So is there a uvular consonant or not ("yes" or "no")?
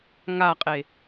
yes